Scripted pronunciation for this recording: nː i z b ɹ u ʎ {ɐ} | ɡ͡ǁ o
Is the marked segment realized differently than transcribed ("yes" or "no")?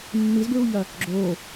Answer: no